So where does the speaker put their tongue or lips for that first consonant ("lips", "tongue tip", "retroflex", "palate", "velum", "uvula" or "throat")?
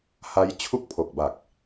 throat